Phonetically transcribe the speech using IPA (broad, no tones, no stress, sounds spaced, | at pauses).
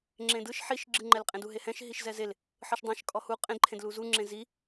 ŋ͡ǁ ẽ d ɯ ʃ ħ i ʃ ɡ͡ǁ ɯ ŋ͡ǃ ɛ l qʼ ẽ d u ɦ e h ɛ̃ ʃ ɦ i ʃ z ɛ z e l | ħ ɯ ʃ dˤ ẽ ʃ kʼ ɔ h u qʼ ẽ d ǃʰ ẽ d l u z u ŋ͡ǁ ẽ z i